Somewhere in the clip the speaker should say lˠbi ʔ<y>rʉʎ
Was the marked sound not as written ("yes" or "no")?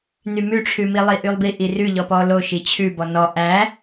yes